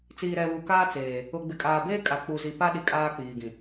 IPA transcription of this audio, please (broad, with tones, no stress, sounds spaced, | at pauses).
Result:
t͡s iː˨ ɾ ɛ˨ β u˨ k aː˦ t͡s eː˨ | ʊ˨ ɡ͡b ɪ˨ kʼ aː˨ b eː˦ kʼ a˨ k͡p u˨ z i˨ p a˦ ɗ i˨ kʼ aː˦ k͡p iː˨ ɡ ĩ˨